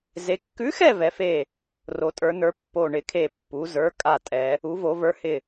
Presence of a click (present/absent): absent